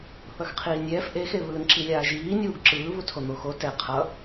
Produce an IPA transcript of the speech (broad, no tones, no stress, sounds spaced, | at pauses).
θ ʌ x qʰ iː nʲ ɛː f ʔ e x e β ɯː n ǁ i lʲ aː ʒ iː nʲ uː ɡ ǁ ɯː β u tʰ o n̪ o x o t ɛ qʰ ʌ